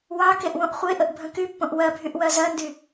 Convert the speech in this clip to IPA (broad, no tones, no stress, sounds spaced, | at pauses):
w ɑ k e ʔ w õ ʔ χʷ e ʔ ə ʔ bʱ ə̃ k y pː õ ʔ w ɜ bʱ y ʔ w ɜ z ɜ n d y